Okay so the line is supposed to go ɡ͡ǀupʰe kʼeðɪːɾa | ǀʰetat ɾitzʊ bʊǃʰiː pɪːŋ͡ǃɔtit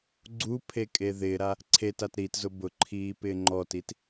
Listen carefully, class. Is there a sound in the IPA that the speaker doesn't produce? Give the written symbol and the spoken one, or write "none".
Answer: none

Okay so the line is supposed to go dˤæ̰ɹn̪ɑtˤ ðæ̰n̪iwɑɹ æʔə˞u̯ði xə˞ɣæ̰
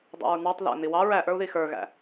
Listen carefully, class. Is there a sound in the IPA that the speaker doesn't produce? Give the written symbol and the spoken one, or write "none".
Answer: none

